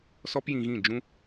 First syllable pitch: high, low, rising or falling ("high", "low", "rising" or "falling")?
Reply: high